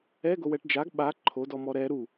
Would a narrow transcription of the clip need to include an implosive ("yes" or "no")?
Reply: yes